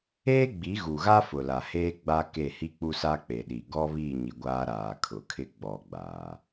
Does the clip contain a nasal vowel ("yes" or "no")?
no